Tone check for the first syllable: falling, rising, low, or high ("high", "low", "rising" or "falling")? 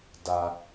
low